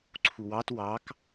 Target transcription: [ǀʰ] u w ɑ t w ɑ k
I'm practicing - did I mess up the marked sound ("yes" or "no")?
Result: no